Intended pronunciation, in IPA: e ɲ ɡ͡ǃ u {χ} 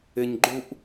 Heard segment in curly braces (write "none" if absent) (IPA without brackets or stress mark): ʔ